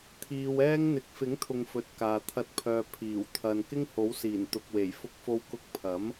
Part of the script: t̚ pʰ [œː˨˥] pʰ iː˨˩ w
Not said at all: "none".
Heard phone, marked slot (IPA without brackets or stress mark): œː˨